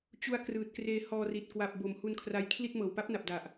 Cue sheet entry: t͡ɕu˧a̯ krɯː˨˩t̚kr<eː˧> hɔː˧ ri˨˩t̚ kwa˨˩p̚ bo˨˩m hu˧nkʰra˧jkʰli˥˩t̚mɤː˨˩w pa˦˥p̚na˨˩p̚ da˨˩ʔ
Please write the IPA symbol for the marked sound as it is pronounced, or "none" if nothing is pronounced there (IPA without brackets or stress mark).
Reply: eː˧